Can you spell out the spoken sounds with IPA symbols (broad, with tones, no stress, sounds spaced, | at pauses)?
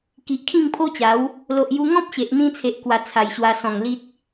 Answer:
k i˨ ʔ kʰ ĩ˥˧ ŋ pʰ o˦ t͡ɕ a˨˦ w | l o˨ ʔ j u˧ ŋ ɔ̃˦ p̚ ɕ e˨ ʔ n̪ ĩ˧ t͡sʰ e˨ ʔ k w a˧ t͡sʰ a˨˩ j ɕ w a˧ s ɔ̃˨˩ ŋ l i˦ t̚